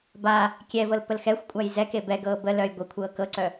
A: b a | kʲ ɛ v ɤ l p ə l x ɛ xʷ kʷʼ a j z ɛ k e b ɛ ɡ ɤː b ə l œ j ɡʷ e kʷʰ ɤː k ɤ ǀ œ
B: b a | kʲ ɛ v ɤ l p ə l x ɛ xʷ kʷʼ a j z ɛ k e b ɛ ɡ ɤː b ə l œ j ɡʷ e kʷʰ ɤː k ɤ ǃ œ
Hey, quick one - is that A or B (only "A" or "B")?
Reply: A